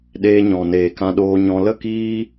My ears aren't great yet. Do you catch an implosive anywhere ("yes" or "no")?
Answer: yes